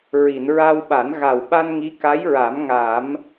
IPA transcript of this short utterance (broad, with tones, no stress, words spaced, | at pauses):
ɹi˨˩˨nɹa˧wɓa˨˩˦n ɣa˨˩wɓa˧nŋi˧˥ ka˧˥jɹa˨˩˦mŋa˨˩˦m